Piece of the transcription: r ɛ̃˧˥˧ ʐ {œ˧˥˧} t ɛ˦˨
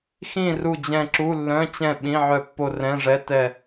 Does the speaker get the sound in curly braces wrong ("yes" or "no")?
yes